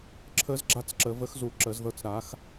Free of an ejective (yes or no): yes